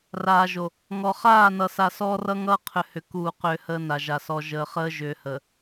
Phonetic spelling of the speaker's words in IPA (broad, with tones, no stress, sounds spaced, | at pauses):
r aː˨ ʒ o˨ | ŋ ɔ˨ χ aː˦˨ n ʌ˨ s a˨ s ɔː˦ r ʌ˦ ŋ ʌː˦ qʰ ʏ˨ h ʏ˨ k uː˦˨ q ʏː˦ h əː˦ n a˨ ʒ a˨ s ɔ˨ ʒ əː˨ χ əː˦ ʒ ʏː˨ h ə˨